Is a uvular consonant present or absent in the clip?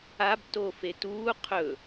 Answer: present